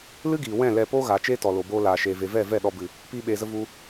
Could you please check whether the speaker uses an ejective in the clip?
no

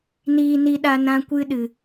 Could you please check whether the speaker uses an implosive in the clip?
yes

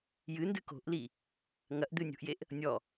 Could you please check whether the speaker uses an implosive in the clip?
no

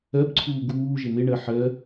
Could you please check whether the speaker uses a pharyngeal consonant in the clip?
yes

